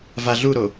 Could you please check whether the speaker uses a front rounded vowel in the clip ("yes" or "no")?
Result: no